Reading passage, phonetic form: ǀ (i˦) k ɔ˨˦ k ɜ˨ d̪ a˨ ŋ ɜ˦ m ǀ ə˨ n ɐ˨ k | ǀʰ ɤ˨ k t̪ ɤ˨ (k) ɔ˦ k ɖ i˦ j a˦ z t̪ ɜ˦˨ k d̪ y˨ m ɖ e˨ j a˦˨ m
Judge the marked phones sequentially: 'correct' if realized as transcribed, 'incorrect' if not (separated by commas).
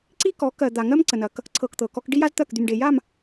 correct, correct